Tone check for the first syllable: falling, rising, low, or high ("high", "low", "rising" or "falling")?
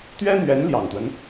high